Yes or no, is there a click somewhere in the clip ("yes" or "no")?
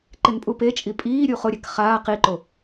yes